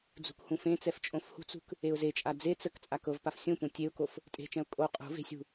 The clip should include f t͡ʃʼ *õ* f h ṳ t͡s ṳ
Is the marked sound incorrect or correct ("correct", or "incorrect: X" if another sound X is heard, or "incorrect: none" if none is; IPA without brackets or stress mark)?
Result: correct